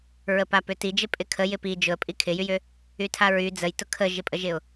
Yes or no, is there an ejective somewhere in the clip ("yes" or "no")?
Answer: yes